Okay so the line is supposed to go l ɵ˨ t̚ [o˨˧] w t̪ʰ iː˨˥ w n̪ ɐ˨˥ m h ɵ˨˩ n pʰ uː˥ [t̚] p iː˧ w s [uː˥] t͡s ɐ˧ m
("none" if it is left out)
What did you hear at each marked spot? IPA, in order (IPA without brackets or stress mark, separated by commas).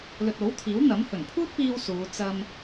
o˨˥, t̚, uː˨˧